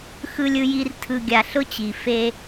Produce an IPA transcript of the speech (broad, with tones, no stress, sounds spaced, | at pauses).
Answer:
x ɯ˨ lʲ ɯ˨ j i˨ r tʰ ɯ˨ ɡʲ a˨ ɬ ʊ˦ t͡ɕ i˨ f e˦